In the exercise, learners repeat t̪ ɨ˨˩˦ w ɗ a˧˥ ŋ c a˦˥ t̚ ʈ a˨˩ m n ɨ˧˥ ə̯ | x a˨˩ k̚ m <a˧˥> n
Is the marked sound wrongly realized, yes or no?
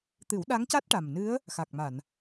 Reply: yes